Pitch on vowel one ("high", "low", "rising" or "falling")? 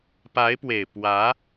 rising